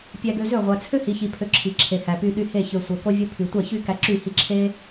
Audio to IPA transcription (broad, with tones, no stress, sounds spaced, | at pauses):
pʲ æ˧ ɡ ø˧ z ø˦˨ ʁʷ æ˨ t͡sʰ ø˦ h i˨ ç i˨ pʰ ø˧ ǁʰ i˨ ǁʰ e˨ h æ˨ p y˧ ɗ y˧ h e˦˨ ç ø˨ sʷ æ˨ k o˧ vʲ o˧ pʰ y˨ tʷ æ˦˨ ç y˦ k æ˧ ǁ y˦˨ h i˧ ǁʰ e˦